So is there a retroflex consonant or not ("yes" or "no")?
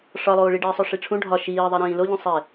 yes